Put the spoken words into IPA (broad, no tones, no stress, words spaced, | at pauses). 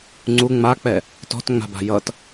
ŋ͡ǀu ŋ͡mak͡pɛ | tɔ̤tŋ͡ma̤ba̤ jʌt